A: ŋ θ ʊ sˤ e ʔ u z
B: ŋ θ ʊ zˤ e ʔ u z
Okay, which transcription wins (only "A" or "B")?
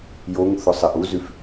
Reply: A